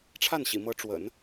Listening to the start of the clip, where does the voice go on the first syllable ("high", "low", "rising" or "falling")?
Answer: falling